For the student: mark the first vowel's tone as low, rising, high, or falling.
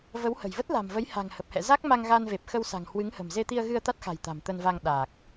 rising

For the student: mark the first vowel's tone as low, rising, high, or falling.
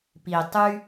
low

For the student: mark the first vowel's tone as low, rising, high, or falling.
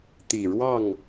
low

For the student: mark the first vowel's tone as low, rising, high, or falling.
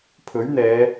rising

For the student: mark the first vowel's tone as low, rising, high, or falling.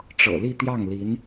low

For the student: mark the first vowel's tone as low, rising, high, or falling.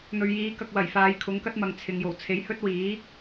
low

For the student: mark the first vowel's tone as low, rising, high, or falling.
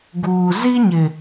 low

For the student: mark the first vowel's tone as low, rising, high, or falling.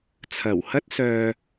low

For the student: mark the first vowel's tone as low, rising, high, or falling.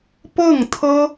falling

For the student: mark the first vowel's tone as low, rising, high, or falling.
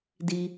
low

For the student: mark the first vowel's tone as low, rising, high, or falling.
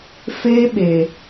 high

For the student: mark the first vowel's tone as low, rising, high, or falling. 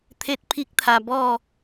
high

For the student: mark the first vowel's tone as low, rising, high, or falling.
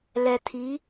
low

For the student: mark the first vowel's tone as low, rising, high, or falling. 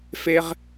high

